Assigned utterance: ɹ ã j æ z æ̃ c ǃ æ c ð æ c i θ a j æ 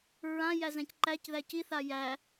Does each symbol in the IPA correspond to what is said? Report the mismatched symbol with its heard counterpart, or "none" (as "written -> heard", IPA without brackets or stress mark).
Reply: none